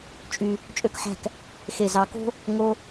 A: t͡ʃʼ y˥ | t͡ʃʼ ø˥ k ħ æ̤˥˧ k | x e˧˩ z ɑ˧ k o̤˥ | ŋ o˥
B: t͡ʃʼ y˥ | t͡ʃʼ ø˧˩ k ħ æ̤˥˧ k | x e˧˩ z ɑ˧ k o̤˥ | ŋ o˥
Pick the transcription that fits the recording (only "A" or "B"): A